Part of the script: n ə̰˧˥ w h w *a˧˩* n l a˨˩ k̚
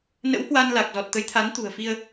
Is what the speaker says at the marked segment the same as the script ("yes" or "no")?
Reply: no